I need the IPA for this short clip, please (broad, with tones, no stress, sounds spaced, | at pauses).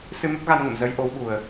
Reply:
s ɨ˧ m ə˦˥ p̚ ɣ a˧ n ŋ ə̰˧˨ m z əː˨˦ j ʔ o˨˦ w ɓ u˨˩ ə̯